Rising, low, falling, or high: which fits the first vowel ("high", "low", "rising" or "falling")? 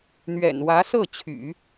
low